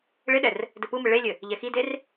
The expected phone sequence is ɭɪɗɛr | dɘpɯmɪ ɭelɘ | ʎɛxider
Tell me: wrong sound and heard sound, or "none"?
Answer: l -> lʲ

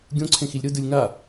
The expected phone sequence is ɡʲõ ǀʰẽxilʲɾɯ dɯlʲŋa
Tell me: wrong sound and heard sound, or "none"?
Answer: none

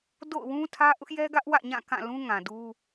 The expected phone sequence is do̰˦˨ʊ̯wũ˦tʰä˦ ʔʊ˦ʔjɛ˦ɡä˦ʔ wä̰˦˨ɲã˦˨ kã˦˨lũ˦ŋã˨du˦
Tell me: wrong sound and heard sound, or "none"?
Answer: none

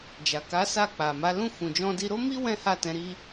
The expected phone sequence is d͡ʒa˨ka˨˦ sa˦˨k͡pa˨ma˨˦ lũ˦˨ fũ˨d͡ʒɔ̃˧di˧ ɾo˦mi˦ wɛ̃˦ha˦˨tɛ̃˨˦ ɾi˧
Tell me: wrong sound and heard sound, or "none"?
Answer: none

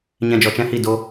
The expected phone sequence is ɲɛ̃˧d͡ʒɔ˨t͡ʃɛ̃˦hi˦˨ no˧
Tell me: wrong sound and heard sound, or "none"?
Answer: n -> d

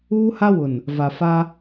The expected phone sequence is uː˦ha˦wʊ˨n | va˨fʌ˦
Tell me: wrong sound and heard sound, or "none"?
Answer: ʌ˦ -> a˦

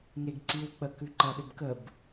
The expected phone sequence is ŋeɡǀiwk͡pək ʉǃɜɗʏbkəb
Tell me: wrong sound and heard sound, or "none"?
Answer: none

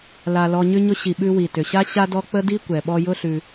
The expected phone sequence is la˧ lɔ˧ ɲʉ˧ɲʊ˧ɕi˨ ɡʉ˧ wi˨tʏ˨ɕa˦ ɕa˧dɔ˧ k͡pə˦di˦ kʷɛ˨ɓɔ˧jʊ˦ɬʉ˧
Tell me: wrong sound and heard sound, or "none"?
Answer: ɡ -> ɓ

